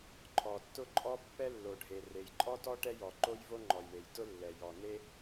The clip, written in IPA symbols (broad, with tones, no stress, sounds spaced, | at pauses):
ǃʰ ɔ˩ tː ʊ˥ ǃʼ ɔ˥ pː ɛ˥ lː o˩ ɖʱ e˩ r e˩ j ǃʼ ɔ˥ t ɔ˥ ʈ ɛ˥ j ɔ˩ ǃ o˥ j v o˥ ŋ͡ǃ ɔ˩ j ɳ e˩ j t ʊ˥ lː ɛ˩ j ɔ˩ n e˥